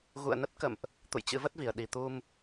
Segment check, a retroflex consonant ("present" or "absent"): absent